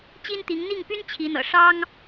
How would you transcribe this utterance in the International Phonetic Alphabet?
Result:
t͡ɕ i˥ n t̪ i˧˥ ŋ n̪ i˥˩ ŋ p y˥ n t͡ɕʰ i˧˥ n̪ ɤ̰˨˩ ʂ ɑ˥ ŋ

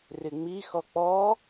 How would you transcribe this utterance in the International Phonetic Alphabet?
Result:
r ɪ ŋ͡m i x ɔ k͡p ɔ

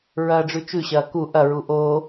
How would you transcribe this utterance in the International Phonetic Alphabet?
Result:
ɹ ɐː ɖ͡ʐ ʉ t͡ʃ ʉ ɕ ɐː k u ʔ ɐ ɹ u ʔ oː

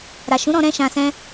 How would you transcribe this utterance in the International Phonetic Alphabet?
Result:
ɾ a˨ ʃ ũ˨˦ ɾ ɔ̃˧ ɾ ɛ̃˦ ʃ ã˧ s ɛ̃˦

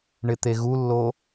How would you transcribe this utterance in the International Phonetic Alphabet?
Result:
ɳ ɪ t̪ e ɣ u lː o

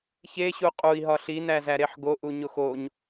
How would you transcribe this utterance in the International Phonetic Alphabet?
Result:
ç e ɕ u qʼ u i̯ ɦ ɒ ɬ i n æ z æ ɾ e ħ ɡ o ʔ u ɲ o x o ɲ

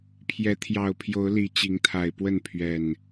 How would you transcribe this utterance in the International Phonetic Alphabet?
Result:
pʰ j ɛ˨˦ t̪ʰ j ɑ˨˩ ʊ̯ pʰ j o˨˦ ʊ̯ l i˨˩ t͡ɕ i˨˦ ŋ t̪ʰ a˨˩ ɪ̯ p w ə˥˨ n pʰ ɥ ɛ˨˩ n

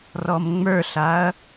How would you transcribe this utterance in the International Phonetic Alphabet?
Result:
r ɔ m ŋ͡m ə˞ ɬ a ɐ̯

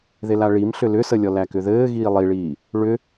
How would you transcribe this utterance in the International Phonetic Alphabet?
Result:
ð e l a ɭ i m ɬ ʏ l ʏ s ə lʲ ɔ l æ k ʏ ð ɘː ɣ iː lˠ i ɭ iː | ɭ ʏ

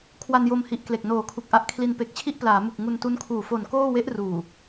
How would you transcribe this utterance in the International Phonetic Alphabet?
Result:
kʰ w a˧ n j o˧ m h i˨˩ ʔ k l e˨˩ k̚ n oː˨˩ kʰ u˨˩ k̚ ʔ a˦˥ ʔ kʰ l i˧ n p e˨˩ k̚ t͡ɕʰ i˥˩ ʔ p l aː˩˦ m u˨˩ k̚ ŋ u˧ n t u˦˥ n kʰ uː˨˩ f o˨˩ n k oː˥˩ w e˦˥ ʔ r uː˨˩

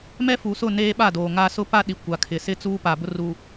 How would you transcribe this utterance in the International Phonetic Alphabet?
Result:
m ɛ˦ f u˨ s ʊ˦˨ n eː˦ ɓ a˦˨ d oː˨ ŋ a˦ s ʊ˦ p a˦ ɗ i˨ kʷ a˨ kʰ ɪ˨ s ɪ˦ t͡s uː˦ p a˨ b ʊ˦ r u˨

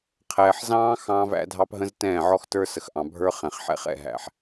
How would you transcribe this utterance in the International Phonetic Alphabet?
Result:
qʰ ɛː˨ ħ z ɑ̃ː˦ x ɑ̃ː˦ v æ̰˦ dʱ ɑ˦ p ɦ ə̃˦ z t ɛ̃ː˦˨ ʕ ɔ˦ x t ə˞˦ s ə˨ x ʔ ɑ̃˨ bʱ ə˞˦ χ ɛ̃˨ χ ħ ɛ̰˦ χ ɛ̰˨ ɦ æ̰˨ ħ

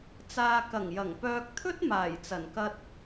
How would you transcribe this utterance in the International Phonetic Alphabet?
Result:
t͡s aː˨ k ɐ˨˩ ŋ j ɐ˨˩ ŋ p œː˧ k̚ t̪ʰ ɵ˥ t̚ m aː˨˩ j t͡s ɐ˨˩ n k ɐ˧ t̚

